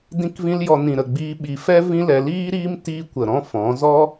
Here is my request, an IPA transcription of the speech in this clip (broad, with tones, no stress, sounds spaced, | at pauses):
d ĩ˦ k v ĩ˦ l j ɔ˧ n ĩ˨ ɾ ə˨ ɡ͡b iː˧ ɓ i˨ f ɛ˦ v ĩ˦ l ɛ˧ l iː˦ ɾ iː˦ m t iː˦ kʷ ə˨ ɾ ɔ̃˦ f ɔ̃˨˦ z ɔ˦